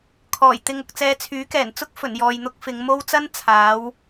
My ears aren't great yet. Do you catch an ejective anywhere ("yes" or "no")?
no